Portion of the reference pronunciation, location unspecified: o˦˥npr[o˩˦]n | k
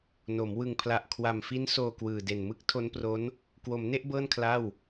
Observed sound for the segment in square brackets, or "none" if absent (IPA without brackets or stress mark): o˦˥